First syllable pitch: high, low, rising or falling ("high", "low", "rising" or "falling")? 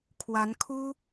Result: rising